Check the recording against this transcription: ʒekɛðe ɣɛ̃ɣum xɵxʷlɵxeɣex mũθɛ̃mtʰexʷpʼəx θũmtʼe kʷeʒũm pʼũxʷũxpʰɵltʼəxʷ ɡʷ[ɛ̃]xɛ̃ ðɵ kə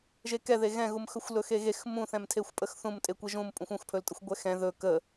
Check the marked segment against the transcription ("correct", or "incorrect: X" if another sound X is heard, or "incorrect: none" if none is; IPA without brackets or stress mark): incorrect: ɛ